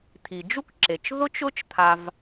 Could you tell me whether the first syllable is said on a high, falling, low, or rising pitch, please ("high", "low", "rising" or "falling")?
low